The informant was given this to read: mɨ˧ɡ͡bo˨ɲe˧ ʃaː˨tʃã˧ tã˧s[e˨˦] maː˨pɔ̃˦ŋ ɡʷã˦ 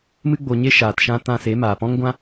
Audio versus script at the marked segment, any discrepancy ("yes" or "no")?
no